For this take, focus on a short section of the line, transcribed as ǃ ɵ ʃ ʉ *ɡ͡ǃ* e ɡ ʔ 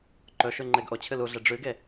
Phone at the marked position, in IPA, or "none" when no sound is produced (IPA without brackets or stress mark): ŋ͡ǃ